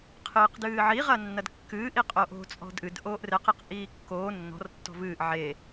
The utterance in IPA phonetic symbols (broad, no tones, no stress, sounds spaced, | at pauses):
qʰ ɨː q d ɨː ʕ i ʁ ɐ nː ɐ d kː ɨː ʔ i qʼ o ʔ o̤ t͡sʼ ɔ̤ d ʔ ɨ d ʔ oː ʔ r ɘ q i q ʔ iː kː oː nː ɔ̤ r tː ɔ̤ v ɨː ʔ ʕ e